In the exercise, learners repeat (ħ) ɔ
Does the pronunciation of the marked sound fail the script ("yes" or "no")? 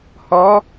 yes